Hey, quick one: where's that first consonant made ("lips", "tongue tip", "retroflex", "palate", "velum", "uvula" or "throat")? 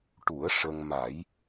retroflex